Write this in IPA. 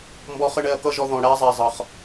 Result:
mbɔ˧ χə˦ɳɛ˧ɐ̯kʌ˦ʒɔ˧ ðɔ̃˨ɽæ˦zˤæ˨zˤʌ˨χ

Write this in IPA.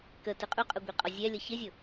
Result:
kətɪ qʼuqʼəɡʷiqʼɔ zʲɛlʲʌ çɪzʲʊ

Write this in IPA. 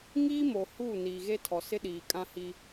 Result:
ŋiː˦mo˨ hu˦˨ niː˨ɣe˦tʰɔ˨ sɪ˦ɗiː˨kʼã˦hi˦

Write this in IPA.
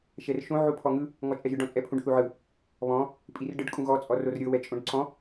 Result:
ʃɛrʃõ ʕupʰɔŋɯ | ŋɔt͡ʃʼɛʒɯɖ ɔ̃t͡sʼɛpʰũɖ θuʕɯ | βɔ̃ | pʼirɖɯɖ kʼũɣɔ t͡sʼɔrorɾʲɤ wɛt͡ʃʼõɖǀɔ̃

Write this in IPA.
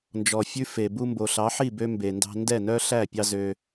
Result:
nd͡ʒɔ˨fʲʉ˦fe˨ bu˧mbo˨ɬɑ˨˦ħi˦˨ bø˦mbe˨ndɑ̤˦ ndɛ˦˨nœ˦ɬæ˦˨ pʲɑ˦zø˧

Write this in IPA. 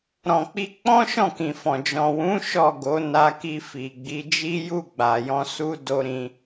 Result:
ɾɔ̃˨k͡pi˧ k͡pɔ̃˦ʃɔ̃˦˨kĩ˨fɔ̃˨ d͡ʒɔ̃˨wũ˨˦ ʃɔ˦˨ɡo˨˦na˧ki˧ fi˨ɡ͡bi˨˦d͡ʒi˦ ju˦˨ɡ͡ba˨jɔ̃˧ su˦ do˦ ɾĩ˧

